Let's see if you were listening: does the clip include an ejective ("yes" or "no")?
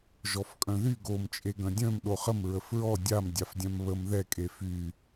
yes